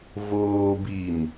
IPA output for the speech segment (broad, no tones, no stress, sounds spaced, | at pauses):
v oː b i n